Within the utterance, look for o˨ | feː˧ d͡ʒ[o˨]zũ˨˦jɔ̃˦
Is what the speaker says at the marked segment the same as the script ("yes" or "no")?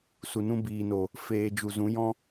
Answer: no